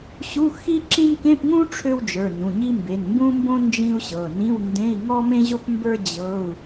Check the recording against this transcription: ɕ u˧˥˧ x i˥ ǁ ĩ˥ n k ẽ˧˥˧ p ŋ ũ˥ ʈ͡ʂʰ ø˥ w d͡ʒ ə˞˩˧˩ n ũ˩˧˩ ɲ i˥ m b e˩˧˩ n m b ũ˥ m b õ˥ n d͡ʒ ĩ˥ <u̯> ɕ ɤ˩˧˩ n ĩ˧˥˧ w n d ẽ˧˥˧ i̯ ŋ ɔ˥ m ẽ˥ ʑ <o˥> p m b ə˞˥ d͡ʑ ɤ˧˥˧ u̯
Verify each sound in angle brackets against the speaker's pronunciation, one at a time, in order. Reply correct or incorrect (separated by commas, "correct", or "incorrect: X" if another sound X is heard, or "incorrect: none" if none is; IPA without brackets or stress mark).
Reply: correct, correct